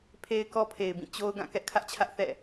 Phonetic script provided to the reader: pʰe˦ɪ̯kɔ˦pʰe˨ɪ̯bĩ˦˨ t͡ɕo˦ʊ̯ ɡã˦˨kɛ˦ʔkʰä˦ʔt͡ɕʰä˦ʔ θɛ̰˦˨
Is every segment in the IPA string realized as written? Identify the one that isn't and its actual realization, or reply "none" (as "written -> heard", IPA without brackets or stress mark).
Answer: none